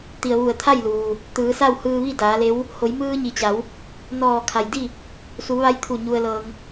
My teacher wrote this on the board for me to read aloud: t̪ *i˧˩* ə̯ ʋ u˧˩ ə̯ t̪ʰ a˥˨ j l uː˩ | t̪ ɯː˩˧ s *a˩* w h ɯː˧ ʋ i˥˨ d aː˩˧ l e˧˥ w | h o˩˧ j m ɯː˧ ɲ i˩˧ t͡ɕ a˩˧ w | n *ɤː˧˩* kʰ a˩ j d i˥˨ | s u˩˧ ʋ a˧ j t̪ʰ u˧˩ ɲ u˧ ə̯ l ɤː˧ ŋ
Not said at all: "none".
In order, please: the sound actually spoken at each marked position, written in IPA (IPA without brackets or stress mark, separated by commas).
i˩, a˥˨, ɔː˧˩